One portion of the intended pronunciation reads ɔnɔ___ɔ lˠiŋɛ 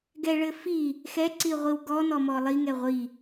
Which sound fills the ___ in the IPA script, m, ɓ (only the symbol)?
m